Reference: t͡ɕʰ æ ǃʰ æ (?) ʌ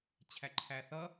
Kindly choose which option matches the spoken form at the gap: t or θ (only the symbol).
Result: θ